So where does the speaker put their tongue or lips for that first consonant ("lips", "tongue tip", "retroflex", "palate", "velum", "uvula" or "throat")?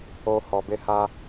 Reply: throat